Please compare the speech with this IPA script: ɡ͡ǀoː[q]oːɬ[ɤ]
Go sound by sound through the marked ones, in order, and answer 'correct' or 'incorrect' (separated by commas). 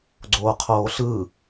incorrect, incorrect